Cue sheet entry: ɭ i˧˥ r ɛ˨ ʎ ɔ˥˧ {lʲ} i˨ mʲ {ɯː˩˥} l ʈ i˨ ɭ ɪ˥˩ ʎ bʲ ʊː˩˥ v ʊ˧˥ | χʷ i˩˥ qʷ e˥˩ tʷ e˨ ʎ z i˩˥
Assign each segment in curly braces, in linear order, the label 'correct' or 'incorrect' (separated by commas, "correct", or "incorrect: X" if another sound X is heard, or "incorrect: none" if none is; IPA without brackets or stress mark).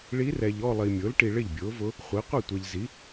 incorrect: lˠ, incorrect: ʊː˩˥